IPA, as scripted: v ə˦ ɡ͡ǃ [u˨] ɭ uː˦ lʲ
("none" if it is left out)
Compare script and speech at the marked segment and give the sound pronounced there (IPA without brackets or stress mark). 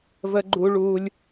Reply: u˦